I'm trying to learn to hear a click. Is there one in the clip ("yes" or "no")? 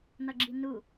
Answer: yes